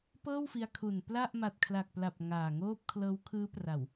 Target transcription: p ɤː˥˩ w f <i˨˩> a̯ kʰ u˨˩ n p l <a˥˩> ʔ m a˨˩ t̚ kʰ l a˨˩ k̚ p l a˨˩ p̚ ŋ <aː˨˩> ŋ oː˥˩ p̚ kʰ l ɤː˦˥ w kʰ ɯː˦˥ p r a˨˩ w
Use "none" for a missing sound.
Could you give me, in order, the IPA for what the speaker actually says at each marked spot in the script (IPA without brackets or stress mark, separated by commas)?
i˧, a˥˩, aː˨˩